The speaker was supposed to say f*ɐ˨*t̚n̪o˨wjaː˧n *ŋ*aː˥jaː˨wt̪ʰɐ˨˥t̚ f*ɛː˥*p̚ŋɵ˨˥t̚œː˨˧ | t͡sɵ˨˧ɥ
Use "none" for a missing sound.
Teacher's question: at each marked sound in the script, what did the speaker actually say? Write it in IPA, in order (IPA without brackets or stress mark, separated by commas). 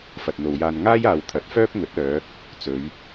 ɐ˨, ŋ, œː˥